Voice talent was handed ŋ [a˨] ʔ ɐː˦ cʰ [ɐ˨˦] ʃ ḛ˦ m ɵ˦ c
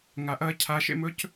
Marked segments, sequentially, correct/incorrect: correct, incorrect: a˨˦

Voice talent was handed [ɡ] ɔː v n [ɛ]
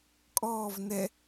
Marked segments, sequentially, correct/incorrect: incorrect: kʼ, correct

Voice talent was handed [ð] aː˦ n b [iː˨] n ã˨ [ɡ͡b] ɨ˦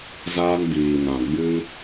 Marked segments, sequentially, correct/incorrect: incorrect: z, correct, correct

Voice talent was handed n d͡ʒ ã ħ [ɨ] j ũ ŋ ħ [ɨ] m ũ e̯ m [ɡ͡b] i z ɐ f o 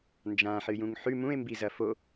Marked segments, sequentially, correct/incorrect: correct, incorrect: ʉ, incorrect: b

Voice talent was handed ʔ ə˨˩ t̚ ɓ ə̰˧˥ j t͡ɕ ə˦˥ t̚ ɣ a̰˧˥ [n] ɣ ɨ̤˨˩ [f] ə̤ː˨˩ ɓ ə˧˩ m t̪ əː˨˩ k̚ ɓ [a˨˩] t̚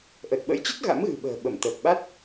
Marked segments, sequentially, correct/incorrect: incorrect: m, incorrect: ɓ, incorrect: a˦˥

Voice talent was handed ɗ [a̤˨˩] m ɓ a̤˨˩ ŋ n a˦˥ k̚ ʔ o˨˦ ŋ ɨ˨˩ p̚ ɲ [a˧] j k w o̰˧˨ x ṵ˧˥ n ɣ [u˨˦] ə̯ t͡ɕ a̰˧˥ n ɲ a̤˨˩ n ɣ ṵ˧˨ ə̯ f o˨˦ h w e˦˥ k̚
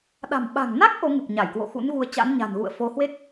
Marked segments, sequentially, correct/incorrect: correct, incorrect: a˧˩, correct

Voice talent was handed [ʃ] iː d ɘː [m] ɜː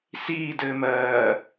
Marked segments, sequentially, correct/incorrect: incorrect: s, correct

